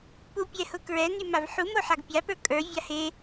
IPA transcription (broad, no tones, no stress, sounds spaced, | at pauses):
p u pʲ ɛ h ʊ k ɹ ɛ n y m a v ħ u m o ħ a ɡ pʲ a p ə˞ kʼ ə˞ vʲ a h e